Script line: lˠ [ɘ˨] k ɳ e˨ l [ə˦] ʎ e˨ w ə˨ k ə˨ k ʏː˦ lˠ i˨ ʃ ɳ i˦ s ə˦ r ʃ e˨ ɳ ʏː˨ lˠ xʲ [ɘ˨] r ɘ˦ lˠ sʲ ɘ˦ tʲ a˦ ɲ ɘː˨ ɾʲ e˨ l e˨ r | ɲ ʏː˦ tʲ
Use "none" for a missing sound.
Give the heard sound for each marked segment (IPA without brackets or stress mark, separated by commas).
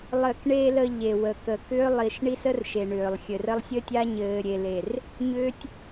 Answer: ɘ˨, ə˨, ɘ˨